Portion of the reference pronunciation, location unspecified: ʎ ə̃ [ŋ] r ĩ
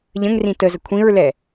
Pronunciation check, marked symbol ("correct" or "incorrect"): correct